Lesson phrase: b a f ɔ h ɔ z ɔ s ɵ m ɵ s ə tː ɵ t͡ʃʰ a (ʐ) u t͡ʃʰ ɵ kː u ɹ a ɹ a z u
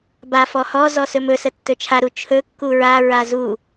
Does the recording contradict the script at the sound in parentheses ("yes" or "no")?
yes